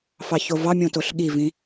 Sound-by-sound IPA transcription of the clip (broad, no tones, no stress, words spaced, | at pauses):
fɑçovɑmʲõ toɬɠivĩ